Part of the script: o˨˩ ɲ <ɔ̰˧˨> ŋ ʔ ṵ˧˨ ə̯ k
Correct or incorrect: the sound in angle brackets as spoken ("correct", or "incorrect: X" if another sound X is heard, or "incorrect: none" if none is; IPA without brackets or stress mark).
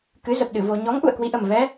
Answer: incorrect: ɔ˨˦